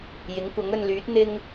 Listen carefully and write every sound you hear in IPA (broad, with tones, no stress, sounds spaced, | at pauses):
j ɪ˨˥ ŋ kʷ ɐ˨˥ ŋ ɵ˧ n l yː˨˥ t̚ n̪ ɪ˥ ŋ